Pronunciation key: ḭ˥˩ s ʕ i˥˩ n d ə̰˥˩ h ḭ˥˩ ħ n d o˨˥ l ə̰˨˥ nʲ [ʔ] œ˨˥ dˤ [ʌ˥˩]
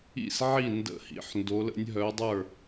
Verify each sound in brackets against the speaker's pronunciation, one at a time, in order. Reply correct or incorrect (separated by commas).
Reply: incorrect, incorrect